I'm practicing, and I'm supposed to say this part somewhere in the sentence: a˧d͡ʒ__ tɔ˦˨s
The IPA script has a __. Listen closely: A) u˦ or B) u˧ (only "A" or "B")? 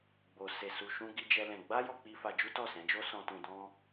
A